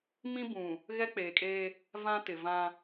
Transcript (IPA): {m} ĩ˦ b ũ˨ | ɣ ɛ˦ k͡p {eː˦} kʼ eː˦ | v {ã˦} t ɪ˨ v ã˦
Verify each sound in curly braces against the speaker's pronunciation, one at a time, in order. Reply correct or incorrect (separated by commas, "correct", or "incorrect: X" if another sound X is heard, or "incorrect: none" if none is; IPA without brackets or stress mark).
correct, incorrect: eː˨, correct